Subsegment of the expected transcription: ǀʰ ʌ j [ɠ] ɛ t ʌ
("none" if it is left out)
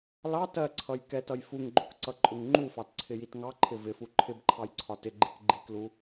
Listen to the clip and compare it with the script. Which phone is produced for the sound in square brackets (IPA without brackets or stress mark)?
k